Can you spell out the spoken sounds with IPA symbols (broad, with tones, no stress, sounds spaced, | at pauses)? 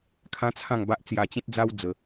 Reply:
kʰ ã˦ t͡sʰ ã˥˧ ŋ b a˦ ʔ t͡s j a˧ t͡ɕ ẽ˦ t̚ d͡z a˦ w d͡z ə˧